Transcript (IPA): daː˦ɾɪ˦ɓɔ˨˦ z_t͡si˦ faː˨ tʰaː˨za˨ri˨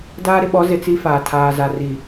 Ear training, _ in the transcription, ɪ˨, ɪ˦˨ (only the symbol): ɪ˨